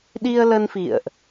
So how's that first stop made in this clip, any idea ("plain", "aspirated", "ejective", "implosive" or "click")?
implosive